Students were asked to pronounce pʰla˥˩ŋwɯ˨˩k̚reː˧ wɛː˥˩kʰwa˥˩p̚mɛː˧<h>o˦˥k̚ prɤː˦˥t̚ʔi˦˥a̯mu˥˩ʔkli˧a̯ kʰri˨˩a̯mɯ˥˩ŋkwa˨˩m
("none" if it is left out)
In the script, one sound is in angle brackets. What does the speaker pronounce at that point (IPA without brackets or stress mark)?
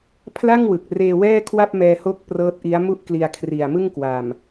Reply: h